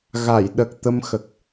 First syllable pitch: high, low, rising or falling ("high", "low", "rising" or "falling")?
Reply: low